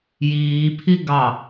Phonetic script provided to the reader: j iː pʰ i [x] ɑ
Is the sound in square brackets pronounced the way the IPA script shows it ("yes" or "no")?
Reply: no